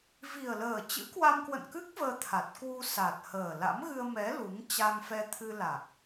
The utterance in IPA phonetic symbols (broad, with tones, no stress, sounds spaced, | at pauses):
v i˨˩ ə̯ l əː˨˩ t͡ɕ ɨ̰˧˥ k w a˧ m k w ə̰˧˨ n k ɨ˦˥ k̚ v əː˧ t̪ʰ a˨˩ t̚ k w u˧ s a˨˩ t̚ h əː˨˩ l a̰˧˥ m ɣ ɨ˧ ə̯ m ɛ˨˦ l u˨˦ ŋ t͡ɕ a˧ ŋ f ɛ˧ t̪ʰ ɨ˧ l a˨˩ k̚